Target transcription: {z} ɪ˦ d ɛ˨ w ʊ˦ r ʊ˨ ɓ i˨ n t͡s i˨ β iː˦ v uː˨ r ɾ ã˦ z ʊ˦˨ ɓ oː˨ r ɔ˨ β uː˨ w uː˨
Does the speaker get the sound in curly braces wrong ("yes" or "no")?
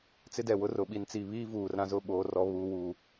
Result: yes